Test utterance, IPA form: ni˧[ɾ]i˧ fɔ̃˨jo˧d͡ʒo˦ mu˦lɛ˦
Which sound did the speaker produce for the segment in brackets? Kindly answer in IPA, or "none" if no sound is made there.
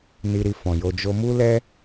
ɾ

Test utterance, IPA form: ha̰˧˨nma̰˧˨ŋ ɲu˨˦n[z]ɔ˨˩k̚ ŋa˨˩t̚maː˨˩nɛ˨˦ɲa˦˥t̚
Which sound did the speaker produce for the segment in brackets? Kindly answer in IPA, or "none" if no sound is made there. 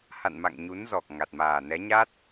z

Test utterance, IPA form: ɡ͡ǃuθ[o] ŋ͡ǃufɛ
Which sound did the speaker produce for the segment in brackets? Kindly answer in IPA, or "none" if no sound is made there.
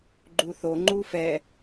o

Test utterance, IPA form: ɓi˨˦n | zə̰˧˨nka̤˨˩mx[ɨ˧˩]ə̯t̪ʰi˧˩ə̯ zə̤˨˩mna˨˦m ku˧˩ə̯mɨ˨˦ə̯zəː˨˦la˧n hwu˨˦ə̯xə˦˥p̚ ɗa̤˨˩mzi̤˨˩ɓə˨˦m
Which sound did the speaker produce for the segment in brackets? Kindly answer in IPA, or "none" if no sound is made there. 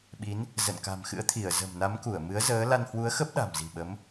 ɨ̰˧˥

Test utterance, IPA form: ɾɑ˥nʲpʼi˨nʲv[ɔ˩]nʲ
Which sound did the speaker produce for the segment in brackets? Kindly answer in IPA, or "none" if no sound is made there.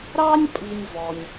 ɔ˩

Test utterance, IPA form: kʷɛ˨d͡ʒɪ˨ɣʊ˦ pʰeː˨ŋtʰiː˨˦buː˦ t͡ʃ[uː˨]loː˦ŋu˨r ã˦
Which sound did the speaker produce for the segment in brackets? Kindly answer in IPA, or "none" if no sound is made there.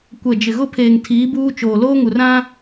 oː˨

